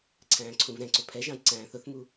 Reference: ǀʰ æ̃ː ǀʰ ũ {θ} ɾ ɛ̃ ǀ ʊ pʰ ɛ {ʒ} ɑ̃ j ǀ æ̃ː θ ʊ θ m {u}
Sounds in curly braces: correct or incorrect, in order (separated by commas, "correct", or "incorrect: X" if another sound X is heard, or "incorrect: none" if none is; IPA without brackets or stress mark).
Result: incorrect: v, correct, correct